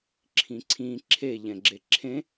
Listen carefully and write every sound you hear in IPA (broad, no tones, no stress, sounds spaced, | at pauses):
ǁʰ ĩ ǀʰ ĩ ǁʰ e ʎ ɛ̃ ɡ͡ǁ e ǁʰ ẽ